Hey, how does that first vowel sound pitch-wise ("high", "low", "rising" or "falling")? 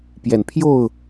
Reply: low